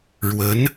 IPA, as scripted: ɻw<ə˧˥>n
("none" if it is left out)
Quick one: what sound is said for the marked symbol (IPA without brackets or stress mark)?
ə˧˥